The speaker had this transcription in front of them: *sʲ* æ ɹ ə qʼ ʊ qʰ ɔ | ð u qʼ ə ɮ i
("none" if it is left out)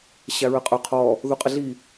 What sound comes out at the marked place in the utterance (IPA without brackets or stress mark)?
ɕ